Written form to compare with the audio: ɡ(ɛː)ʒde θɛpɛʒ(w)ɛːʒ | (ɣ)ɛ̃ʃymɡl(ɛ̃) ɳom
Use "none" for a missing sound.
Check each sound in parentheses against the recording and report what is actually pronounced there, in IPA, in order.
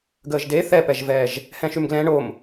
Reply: əː, v, h, ɛ̃

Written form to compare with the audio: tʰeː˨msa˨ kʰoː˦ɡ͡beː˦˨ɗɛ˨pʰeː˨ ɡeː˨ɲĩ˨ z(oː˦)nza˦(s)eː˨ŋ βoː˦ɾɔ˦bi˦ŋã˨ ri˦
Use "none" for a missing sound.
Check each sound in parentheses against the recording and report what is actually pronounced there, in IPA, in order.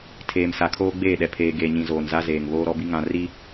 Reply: oː˨, z

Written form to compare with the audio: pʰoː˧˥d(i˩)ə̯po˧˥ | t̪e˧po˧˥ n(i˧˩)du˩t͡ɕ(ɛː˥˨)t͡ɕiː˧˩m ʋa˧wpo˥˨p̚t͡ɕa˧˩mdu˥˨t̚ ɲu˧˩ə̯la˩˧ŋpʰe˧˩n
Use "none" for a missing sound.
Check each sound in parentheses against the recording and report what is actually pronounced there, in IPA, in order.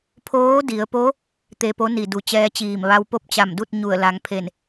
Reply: i˩˧, i˧˩, ɛː˧˥

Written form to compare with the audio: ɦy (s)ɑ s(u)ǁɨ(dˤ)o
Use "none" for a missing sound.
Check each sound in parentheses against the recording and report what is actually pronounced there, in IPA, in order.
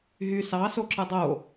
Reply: s, o, dˤ

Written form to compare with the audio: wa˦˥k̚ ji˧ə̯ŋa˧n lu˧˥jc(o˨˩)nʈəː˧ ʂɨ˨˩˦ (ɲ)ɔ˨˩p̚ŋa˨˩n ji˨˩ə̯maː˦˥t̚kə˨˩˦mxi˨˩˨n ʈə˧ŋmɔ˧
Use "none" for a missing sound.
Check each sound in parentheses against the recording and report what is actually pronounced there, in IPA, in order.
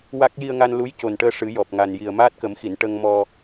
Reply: o˨˩, j

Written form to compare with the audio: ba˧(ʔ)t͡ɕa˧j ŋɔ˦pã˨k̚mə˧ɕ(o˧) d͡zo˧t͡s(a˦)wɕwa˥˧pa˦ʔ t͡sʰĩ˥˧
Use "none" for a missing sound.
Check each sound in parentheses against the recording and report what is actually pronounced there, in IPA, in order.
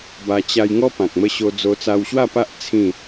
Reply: none, o˧, a˧

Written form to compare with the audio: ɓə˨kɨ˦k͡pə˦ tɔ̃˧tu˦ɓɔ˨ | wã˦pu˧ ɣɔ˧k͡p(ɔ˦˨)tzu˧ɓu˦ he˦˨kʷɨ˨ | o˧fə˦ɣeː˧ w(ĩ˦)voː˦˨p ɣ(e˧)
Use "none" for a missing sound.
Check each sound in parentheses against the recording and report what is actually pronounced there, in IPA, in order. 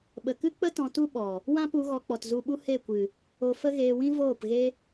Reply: ɔ˨, ĩ˦, e˧

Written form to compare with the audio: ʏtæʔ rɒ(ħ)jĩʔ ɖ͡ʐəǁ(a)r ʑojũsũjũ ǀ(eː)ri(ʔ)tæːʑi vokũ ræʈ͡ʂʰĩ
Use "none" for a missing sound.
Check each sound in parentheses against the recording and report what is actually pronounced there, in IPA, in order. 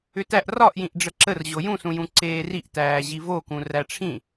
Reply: ʔ, ə, eː, ʔ

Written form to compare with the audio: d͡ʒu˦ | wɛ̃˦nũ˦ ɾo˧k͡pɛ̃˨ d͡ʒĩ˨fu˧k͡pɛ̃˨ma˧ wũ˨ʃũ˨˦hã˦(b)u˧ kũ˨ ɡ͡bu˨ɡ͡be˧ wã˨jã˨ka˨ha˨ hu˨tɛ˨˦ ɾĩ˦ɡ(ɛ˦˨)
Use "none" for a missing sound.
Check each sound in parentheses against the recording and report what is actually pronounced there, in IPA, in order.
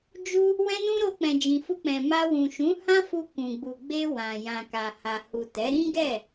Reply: f, ɛ˦˨

